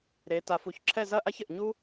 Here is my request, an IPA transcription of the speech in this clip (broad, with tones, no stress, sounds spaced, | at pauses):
ɾ e˩˧ t a˩˧ f u˩˧ ç ǁʰ ɛ˥˧ z ɐ˥˧ ʔ a˥ ç ɘ˧˩ ʔ ɲ u˥